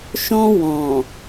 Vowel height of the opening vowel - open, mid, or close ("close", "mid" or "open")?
mid